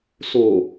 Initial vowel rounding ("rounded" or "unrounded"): rounded